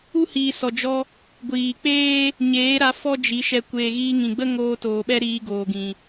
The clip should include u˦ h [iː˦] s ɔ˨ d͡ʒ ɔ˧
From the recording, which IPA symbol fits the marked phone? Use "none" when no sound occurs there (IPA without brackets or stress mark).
iː˨